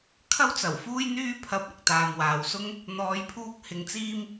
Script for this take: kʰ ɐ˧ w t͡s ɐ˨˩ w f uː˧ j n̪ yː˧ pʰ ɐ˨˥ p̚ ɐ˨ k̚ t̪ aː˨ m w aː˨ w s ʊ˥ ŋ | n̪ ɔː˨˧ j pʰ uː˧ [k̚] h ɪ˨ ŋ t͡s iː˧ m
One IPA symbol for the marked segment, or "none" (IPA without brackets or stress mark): k̚